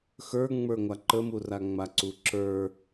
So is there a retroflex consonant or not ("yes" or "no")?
no